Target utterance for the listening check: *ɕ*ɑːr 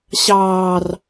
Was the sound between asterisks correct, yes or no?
yes